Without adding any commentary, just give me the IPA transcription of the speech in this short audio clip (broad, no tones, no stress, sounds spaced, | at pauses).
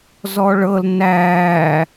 z ɔ ɭ ɤ l n æː